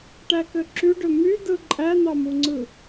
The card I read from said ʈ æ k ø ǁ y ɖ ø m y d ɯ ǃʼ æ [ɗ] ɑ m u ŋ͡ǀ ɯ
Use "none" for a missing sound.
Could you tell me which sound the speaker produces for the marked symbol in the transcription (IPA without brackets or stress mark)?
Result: n̪